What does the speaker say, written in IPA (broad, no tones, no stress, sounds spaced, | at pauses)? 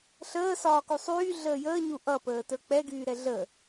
ɬ əː s ɒː k u sˤ yː ɮ əː j əː ɲ u ʔ ʌ p əː t ə˞ k͡p ɛ ɡ yː ɾ ɛ ɮ ə